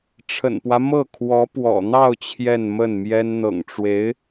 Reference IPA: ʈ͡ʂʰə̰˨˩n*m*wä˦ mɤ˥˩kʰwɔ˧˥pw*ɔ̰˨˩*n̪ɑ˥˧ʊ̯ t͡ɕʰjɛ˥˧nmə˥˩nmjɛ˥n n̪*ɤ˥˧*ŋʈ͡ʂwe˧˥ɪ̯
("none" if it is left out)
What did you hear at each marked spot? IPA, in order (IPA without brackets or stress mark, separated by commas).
p, ɔ̰˨˩, ɤ̰˨˩